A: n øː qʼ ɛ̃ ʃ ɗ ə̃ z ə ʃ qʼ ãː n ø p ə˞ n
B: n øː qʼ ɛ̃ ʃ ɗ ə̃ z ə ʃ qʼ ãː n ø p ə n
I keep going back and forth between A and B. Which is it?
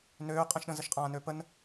B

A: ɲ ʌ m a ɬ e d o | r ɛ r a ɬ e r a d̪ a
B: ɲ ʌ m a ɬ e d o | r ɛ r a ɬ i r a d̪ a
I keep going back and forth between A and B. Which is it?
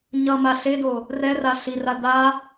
B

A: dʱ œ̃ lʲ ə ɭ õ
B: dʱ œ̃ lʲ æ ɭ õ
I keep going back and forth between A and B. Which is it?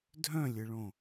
A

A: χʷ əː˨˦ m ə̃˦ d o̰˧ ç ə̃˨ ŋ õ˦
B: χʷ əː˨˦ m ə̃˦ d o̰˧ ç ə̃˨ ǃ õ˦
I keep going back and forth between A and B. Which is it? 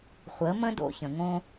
A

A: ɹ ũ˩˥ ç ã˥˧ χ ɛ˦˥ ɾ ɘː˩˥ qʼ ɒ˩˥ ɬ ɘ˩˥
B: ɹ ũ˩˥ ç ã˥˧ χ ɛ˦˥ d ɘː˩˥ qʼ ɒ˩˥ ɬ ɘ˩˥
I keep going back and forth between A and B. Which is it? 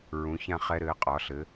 A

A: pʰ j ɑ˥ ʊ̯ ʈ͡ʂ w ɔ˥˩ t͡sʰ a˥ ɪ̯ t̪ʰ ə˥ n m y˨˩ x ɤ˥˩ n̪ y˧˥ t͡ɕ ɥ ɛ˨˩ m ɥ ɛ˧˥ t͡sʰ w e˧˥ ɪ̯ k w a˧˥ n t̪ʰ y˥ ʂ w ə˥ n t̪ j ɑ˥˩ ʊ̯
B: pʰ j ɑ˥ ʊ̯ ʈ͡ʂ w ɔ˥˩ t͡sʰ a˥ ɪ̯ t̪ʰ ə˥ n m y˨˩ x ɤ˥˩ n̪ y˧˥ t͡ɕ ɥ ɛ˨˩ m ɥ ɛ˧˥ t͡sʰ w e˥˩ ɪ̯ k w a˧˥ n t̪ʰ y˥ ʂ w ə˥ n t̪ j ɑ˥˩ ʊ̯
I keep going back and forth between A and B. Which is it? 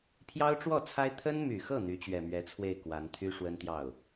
B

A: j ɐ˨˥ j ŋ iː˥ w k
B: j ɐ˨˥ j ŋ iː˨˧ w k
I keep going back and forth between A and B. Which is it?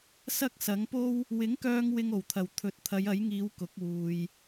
B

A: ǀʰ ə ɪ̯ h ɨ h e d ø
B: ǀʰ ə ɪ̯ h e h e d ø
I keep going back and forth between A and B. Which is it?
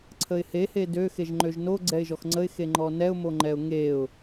B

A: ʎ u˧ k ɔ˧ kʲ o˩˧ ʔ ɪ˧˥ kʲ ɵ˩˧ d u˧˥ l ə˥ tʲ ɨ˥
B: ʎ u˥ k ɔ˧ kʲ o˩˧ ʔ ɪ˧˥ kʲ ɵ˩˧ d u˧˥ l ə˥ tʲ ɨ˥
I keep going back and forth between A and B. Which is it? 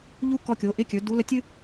B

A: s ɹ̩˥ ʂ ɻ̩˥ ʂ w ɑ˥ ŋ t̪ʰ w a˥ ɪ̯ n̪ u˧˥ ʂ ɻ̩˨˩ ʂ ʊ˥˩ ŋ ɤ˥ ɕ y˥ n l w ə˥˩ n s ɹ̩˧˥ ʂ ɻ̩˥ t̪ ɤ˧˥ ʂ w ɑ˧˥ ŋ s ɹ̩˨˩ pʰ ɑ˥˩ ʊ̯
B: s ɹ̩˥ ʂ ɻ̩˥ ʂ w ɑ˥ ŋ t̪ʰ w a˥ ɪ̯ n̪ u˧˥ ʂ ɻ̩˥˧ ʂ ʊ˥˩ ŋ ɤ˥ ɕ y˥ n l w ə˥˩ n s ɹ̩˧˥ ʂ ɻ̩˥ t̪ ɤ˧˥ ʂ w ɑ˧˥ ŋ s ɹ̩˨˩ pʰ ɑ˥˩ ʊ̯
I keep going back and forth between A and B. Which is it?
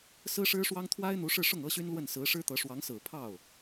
B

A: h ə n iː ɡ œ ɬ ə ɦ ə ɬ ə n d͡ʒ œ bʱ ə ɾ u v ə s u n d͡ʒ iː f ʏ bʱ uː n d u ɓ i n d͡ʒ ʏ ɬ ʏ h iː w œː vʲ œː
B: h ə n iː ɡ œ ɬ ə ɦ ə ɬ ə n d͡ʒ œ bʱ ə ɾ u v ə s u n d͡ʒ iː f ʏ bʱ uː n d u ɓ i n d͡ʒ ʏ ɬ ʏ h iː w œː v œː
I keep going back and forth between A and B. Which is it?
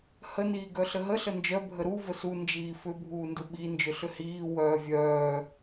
A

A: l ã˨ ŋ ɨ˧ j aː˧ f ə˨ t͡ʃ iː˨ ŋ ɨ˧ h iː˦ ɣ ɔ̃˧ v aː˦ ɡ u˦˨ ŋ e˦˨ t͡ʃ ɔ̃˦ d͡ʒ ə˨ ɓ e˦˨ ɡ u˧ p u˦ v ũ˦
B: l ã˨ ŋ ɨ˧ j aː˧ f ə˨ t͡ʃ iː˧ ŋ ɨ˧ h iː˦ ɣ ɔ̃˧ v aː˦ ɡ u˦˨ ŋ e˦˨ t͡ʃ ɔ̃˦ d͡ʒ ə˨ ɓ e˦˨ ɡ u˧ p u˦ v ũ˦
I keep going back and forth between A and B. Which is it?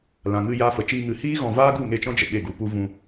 B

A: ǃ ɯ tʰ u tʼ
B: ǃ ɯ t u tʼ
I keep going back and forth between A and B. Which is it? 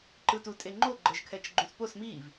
B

